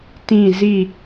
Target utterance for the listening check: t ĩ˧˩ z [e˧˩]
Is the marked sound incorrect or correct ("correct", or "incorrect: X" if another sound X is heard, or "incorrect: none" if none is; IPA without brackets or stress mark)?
incorrect: i˧˩